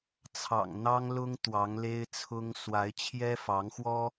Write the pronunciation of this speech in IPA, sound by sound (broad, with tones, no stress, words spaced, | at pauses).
t͡sʰɑ̰˨˩ŋn̪ɑ˥ŋlʊ˥ŋ t̪wɑ˧˥ŋle˥ɪ̯t͡sʰʊ˥ŋ swa˧˥ɪ̯t͡ɕʰjɛ˥fɑ˧˥ŋxwɔ˥